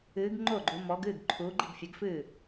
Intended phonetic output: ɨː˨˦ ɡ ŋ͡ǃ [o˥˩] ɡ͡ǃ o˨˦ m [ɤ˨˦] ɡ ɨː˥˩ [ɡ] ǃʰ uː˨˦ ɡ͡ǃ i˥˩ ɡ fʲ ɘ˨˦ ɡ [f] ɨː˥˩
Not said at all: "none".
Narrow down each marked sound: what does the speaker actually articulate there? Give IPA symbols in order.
o˥˩, ɔ˨˦, ɡ, f

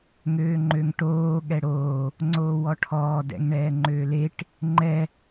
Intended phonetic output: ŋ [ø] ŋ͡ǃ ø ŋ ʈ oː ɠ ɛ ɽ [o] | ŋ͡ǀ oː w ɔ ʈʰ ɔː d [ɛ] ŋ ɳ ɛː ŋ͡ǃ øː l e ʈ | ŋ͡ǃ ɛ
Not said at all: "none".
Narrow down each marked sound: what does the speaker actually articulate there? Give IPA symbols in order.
øː, oː, ɛ̰

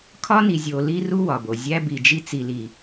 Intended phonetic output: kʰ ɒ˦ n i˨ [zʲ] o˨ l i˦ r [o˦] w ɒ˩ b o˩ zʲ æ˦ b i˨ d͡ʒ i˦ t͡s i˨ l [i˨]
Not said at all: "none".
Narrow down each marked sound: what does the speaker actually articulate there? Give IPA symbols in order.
zʲ, u˦, i˨

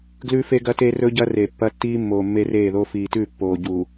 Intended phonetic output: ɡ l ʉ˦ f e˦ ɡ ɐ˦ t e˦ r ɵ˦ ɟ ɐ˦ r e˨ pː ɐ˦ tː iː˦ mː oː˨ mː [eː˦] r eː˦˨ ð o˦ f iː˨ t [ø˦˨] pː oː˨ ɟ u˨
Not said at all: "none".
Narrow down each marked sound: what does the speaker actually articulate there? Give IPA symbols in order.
e˦, ʉ˦˨

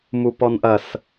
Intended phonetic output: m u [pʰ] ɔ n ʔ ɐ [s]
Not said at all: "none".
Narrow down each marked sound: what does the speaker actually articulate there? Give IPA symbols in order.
p, s

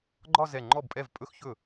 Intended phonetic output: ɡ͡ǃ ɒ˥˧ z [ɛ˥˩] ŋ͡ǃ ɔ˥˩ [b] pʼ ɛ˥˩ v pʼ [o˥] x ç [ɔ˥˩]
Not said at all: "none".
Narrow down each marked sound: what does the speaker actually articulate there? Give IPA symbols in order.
ɛ˧˩, b, ɵ˥, ɵ˥˩

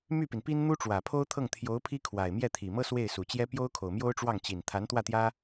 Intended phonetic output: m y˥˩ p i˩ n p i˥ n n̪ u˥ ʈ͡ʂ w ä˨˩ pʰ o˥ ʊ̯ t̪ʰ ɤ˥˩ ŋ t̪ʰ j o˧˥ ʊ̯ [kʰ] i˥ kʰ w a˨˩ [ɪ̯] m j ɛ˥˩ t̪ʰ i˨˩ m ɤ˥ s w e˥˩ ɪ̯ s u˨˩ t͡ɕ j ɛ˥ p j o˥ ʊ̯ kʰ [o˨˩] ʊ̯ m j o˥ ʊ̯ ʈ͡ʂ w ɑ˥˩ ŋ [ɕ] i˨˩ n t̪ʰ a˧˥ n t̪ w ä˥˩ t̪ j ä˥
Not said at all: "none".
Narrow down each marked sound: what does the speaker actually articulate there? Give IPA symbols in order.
pʰ, ɪ̯, o˨˩, t͡ɕ

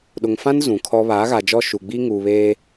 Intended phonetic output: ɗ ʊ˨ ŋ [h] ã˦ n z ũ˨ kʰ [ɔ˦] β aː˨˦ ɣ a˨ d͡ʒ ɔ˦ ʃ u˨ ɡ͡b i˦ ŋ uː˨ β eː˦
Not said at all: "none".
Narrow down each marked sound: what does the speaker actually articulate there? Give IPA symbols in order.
f, ɔ˦

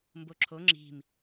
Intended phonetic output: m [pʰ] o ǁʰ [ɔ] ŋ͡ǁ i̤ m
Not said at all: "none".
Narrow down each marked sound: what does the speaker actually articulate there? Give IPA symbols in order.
b, o

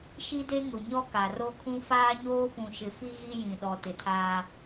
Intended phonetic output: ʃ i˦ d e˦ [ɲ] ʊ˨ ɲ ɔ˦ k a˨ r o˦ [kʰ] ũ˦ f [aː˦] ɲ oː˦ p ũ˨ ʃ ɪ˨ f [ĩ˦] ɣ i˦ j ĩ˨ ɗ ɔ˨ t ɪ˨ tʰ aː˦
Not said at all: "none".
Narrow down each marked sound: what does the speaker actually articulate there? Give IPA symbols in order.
ŋ, kʰ, aː˦, i˦

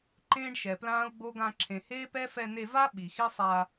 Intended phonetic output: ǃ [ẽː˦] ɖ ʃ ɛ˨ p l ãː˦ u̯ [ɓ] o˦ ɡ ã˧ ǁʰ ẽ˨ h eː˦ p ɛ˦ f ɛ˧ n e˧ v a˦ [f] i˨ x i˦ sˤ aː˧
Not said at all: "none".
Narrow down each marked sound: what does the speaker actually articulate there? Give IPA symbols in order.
ẽː˦, ɡ͡b, ɓ

